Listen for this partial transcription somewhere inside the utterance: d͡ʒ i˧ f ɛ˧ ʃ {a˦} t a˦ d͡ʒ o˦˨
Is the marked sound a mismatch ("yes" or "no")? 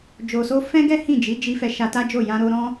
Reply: yes